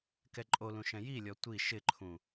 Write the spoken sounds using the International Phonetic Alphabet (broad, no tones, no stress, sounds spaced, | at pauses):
k ɛ ǃʼ o l ũ ʃ ɛ̃ j i lʲ ɔ tʷ i ʃ ɪ ǃʰ ũ